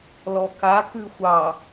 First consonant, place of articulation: alveolar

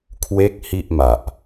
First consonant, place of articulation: velar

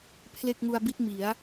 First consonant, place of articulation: labial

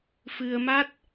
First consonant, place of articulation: labial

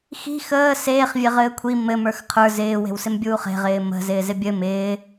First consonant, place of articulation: velar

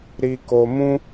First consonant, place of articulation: alveolar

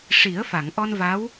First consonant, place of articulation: retroflex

